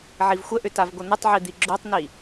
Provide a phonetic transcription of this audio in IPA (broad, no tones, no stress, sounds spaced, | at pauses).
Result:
ʕ i v xʷ ə ʔ ʏ t a v ɡʷ ə n̪ ə tˤ ʕ i d̪ i ɡ͡ǁ o tˤ n i